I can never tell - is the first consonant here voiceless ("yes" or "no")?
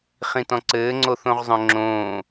yes